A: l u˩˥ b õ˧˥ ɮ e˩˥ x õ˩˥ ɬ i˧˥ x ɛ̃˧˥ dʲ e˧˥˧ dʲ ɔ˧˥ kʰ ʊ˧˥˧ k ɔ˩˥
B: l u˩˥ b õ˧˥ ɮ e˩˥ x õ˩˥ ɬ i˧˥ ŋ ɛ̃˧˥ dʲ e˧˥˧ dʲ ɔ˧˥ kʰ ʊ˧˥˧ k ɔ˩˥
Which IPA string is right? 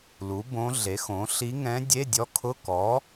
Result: B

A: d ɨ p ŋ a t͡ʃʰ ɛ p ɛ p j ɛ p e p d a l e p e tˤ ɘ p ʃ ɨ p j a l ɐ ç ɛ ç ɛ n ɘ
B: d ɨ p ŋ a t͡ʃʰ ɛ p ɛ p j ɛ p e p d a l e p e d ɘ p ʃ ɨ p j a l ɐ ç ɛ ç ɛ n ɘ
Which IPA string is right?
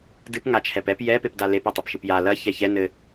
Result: A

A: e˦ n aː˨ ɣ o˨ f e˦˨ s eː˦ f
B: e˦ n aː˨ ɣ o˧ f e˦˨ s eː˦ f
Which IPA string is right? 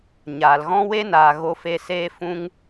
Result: B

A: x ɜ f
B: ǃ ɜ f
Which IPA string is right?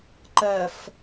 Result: B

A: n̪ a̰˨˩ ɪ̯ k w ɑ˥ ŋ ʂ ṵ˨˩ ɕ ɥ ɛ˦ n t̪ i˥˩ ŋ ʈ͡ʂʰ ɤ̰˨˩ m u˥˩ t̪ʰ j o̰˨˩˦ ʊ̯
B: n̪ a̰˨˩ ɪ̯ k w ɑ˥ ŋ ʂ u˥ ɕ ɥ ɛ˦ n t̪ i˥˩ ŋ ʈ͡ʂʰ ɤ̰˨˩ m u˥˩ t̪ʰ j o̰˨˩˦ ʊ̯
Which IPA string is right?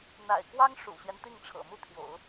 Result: A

